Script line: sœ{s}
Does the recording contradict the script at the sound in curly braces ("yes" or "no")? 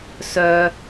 yes